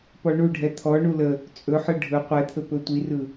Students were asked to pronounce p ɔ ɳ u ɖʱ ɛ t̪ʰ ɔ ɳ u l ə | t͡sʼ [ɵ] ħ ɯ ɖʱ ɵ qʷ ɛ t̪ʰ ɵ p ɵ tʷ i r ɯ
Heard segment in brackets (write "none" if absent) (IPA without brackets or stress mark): ɵ